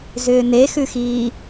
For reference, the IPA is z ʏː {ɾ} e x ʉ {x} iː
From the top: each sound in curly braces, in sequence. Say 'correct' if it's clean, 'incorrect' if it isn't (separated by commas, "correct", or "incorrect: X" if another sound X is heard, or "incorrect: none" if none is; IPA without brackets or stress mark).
incorrect: n, correct